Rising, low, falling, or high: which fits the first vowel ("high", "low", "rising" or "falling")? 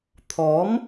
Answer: rising